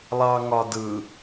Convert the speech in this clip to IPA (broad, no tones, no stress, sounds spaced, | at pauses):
lˠ ɑ ŋ ɒ d ɯ